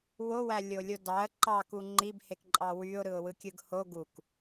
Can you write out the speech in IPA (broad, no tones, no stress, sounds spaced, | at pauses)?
w o w æ lʲ o lʲ o d ɑ ə̯ ǃ ɑ k u ŋ͡ǃ i b h e k ǃʼ ɑ w y ʊ̯ ɾ ɯ ʊ̯ w ɯ kʲ ɯ ɡ h o ɡ u k